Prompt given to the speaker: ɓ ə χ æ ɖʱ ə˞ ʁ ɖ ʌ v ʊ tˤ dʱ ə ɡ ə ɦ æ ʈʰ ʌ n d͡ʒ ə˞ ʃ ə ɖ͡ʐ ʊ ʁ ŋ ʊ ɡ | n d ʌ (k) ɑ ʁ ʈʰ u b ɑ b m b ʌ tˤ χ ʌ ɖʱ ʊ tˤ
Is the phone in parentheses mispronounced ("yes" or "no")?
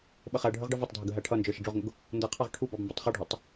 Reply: yes